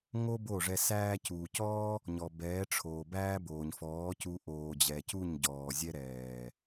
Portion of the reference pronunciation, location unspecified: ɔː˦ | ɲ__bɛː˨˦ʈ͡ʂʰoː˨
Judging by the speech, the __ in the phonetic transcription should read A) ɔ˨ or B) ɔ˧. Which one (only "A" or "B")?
A